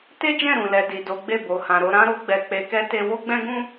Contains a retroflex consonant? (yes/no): no